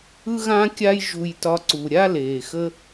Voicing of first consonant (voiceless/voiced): voiced